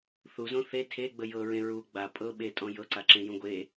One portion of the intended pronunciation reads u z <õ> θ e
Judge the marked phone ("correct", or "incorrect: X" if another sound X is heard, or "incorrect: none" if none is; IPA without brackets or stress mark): correct